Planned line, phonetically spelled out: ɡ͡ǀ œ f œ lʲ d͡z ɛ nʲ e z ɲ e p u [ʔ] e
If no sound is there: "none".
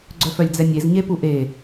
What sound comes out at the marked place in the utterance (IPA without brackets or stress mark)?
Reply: ʔ